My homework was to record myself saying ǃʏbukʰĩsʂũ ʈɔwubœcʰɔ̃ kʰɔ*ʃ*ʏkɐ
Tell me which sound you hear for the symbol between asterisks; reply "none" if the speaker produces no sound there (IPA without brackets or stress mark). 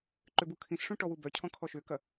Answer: ʃ